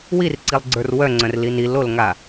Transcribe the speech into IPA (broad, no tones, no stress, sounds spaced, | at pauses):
w i r ǀ i lˠ ɡ͡ǀ ə˞ r w œ ŋ͡ǀ œ̃ r l i n i l o l ŋ a